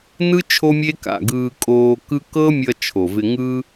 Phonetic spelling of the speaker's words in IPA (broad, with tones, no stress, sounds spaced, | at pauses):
n ɯ˦ t͡ʃʰ o˦ mʲ e˦ k a̰˨ ɡ ɯː˧ kʼ oː˧ k ɯ˦ k ɤ˦ mʲ ʌ˧ t͡ʃʰ o˨ v ɪ˧ ŋ ɯ˦